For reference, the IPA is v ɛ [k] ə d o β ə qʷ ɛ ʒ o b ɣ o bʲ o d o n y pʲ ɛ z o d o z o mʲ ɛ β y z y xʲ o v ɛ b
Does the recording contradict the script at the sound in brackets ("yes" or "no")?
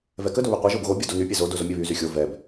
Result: no